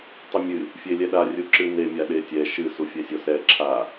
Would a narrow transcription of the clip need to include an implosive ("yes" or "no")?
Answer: yes